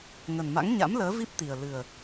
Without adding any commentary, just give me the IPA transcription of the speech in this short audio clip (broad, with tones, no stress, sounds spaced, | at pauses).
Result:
ŋ ə˨˩ n m a̰˧˥ ŋ ɲ a̰˧˥ m l əː˨˦ v i˦˥ p̚ t̪ i˨˩ ə̯ l ɨ˨˩ ə̯